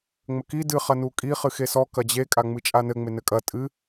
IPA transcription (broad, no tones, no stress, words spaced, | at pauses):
ŋ͡mɘki dɨ χɐnukʼi χɨxesɔ kɐd͡ʑe kʼaŋ͡mɨt͡ʃʼanɘ ŋ͡menɘkʼɐ tʼɨ